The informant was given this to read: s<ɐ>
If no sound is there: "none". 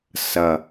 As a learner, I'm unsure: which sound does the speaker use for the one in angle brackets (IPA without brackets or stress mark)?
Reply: ɐ